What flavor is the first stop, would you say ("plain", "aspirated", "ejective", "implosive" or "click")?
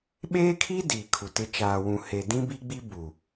implosive